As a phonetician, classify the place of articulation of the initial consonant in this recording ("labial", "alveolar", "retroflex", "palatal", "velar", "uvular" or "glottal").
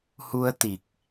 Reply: glottal